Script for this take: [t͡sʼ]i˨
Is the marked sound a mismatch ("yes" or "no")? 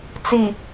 yes